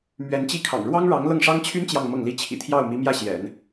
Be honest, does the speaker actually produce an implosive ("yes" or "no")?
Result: no